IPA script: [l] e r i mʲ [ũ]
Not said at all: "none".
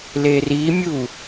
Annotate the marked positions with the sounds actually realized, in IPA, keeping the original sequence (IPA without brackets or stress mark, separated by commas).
l, u